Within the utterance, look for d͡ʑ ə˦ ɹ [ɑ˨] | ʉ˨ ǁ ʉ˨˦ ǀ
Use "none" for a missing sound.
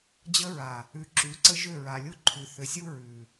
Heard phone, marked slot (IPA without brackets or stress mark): a˨